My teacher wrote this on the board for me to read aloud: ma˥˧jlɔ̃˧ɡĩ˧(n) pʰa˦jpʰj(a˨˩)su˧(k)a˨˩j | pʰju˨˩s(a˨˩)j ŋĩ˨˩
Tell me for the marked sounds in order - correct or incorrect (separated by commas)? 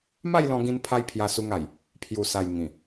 correct, incorrect, incorrect, correct